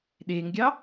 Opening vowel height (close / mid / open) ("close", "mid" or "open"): mid